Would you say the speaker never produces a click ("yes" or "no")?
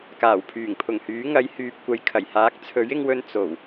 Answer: yes